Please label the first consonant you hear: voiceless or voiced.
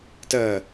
voiceless